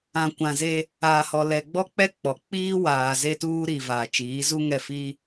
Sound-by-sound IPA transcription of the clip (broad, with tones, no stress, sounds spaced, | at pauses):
ã˨ kʷ ã˨ z e˦ | aː˨ h ɔ˨ l ɛ˨ ɡ͡b ɔ˦ k͡p ɛ˦ k͡p ɔ˨ k͡p iː˦ w aː˨ z e˦ t uː˦ ɾ i˨ v aː˨ t͡ʃ iː˨˦ z u˦ ŋ ɛ˦˨ f i˦